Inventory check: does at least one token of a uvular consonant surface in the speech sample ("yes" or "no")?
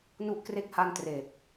no